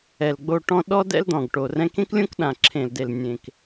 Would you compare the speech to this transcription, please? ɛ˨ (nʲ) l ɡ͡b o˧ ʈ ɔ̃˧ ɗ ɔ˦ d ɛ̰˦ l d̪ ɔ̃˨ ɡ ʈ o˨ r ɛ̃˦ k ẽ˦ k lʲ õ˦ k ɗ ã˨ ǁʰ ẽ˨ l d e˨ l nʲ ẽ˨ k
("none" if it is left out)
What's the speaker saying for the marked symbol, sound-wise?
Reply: none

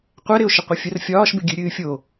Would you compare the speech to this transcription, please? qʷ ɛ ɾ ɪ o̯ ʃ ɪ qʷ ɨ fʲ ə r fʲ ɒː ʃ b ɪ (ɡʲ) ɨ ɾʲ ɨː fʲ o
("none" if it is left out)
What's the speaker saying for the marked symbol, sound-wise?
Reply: ɡʲ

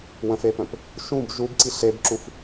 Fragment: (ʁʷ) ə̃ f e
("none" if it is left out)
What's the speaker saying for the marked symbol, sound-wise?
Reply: w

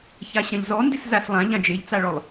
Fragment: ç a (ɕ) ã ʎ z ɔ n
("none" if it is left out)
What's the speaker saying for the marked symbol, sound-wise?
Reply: ɕ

